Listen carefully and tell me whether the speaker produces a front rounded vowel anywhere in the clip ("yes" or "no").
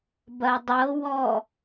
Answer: no